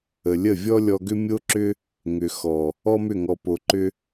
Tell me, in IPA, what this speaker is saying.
ə˨ lʲ ə˦˨ vʲ ɔ˦ lʲ ɔ˧ ɡ ʏ˦ mʲ o˦ ǁ ʏ˦ | ŋ ʏ˨ x ɔ˨ | ɔ˦ m ʏ˦˨ ŋ ɔ˨ p o˨ ǃ ʏ˧

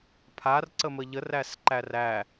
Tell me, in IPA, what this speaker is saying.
pʰ a r ǀ ə m ə ʎ ə r æ s ǃ æ r æ

